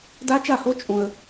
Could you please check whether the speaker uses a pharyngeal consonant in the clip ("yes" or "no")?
no